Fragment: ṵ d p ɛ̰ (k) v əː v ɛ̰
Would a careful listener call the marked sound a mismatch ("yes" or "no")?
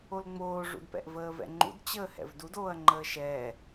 yes